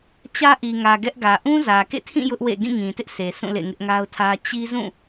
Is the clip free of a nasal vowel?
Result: no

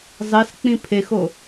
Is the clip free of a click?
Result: yes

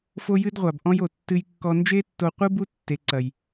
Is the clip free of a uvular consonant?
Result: no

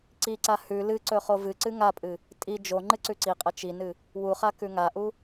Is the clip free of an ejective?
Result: no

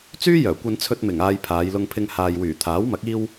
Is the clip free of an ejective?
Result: yes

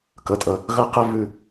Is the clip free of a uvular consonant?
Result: no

